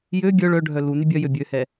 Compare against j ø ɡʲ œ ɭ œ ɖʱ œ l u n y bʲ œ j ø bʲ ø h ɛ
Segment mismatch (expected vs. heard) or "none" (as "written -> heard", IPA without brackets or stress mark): none